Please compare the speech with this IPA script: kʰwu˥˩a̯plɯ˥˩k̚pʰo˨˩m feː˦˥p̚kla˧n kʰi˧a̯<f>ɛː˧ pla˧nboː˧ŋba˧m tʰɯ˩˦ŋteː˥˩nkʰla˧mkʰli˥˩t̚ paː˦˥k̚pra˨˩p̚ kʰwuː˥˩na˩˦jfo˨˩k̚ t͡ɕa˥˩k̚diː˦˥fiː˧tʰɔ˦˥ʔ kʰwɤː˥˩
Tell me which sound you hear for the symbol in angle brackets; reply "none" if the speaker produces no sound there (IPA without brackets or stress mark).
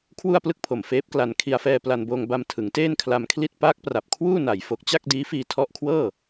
f